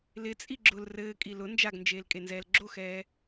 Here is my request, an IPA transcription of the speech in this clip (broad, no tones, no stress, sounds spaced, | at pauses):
l ɪ t͡sʼ i ɡ͡ǁ ʊ l r ɘː kʼ i l ʊ n d͡ʒ a ɡ n d͡ʒ eː l kʼ e n z ɛː l ɡ͡ǁ o x ɛː